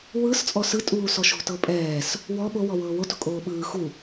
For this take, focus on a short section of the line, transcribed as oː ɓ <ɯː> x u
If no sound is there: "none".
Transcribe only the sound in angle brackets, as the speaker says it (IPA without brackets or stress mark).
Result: ɯː